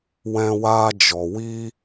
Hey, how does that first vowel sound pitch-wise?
high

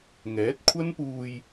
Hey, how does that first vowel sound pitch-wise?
rising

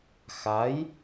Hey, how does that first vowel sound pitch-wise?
rising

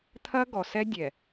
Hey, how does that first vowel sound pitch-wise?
high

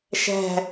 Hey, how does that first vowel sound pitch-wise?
falling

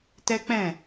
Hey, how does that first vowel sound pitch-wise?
high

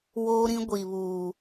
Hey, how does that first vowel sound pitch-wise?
high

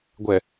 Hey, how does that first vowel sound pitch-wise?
low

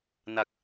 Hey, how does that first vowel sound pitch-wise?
low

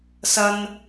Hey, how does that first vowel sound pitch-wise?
high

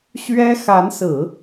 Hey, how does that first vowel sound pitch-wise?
high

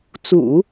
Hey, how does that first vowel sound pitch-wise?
low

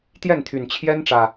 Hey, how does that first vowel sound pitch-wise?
falling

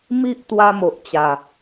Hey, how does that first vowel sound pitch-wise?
high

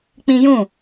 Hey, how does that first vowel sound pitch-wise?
high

